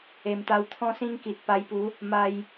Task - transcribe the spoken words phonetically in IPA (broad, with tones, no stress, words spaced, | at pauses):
e˨˩mt̪a˧wt̪ʰɔ̃˦sĩ˦ŋ ki˨t̚pa˧jpu˨˦ | ma˧j